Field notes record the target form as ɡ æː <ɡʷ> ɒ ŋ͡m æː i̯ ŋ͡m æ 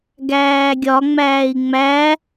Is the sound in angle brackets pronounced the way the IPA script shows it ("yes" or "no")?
no